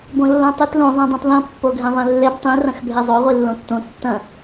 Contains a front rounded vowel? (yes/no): no